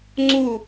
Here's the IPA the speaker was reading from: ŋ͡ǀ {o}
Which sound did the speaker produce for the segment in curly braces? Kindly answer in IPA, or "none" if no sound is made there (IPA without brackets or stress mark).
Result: u